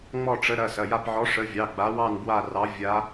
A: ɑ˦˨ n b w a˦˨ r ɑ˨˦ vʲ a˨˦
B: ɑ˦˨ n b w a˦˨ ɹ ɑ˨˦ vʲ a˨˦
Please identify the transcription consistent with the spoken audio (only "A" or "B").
A